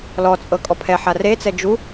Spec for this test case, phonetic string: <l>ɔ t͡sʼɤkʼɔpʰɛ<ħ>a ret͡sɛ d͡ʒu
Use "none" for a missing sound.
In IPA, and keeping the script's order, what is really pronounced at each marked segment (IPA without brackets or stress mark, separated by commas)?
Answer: l, ħ